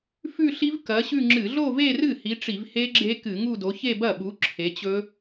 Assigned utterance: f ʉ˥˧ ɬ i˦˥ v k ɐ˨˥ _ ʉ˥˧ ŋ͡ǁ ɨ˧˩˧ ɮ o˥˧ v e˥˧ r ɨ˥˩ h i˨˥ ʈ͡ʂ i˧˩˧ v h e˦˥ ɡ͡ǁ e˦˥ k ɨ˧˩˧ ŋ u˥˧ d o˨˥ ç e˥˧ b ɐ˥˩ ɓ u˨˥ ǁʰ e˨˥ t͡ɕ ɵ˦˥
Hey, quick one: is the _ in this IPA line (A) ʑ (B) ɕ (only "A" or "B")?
B